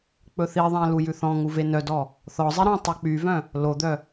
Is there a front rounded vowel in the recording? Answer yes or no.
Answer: yes